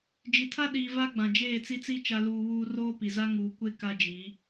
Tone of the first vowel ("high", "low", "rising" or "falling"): low